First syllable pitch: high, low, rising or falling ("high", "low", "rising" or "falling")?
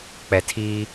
low